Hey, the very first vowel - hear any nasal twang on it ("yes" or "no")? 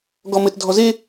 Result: no